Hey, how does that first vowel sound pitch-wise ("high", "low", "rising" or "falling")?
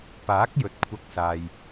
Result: rising